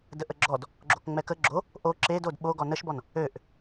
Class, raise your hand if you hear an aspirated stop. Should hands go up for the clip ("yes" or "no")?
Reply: no